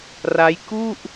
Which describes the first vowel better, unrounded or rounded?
unrounded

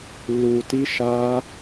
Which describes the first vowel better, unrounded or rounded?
rounded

